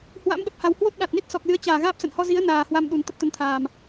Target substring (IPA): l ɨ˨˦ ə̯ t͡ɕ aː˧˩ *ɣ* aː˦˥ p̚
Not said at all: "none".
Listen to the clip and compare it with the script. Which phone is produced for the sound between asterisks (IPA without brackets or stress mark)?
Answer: ɣ